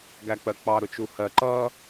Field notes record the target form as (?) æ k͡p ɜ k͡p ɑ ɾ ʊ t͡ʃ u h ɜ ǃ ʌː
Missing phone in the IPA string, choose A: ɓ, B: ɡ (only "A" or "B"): B